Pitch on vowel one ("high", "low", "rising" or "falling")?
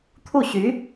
falling